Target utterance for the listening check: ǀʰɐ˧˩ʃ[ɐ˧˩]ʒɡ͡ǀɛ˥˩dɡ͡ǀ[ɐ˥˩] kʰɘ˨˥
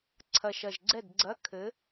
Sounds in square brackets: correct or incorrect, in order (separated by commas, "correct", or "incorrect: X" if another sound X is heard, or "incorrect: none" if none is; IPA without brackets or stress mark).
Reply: correct, incorrect: ɐ˧˥˧